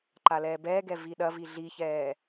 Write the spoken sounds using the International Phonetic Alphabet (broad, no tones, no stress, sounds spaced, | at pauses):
ǃ a l ɛː b ɛː ɡ ɛ v i ɗ ɐ v i ɮ i ç ɛː